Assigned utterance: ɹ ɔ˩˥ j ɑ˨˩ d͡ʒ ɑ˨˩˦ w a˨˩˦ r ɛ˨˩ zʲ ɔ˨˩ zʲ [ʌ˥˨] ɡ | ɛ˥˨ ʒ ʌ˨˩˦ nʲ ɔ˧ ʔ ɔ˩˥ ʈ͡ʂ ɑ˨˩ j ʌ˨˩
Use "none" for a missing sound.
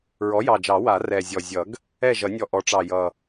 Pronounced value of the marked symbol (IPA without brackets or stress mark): ʌ˨˩˦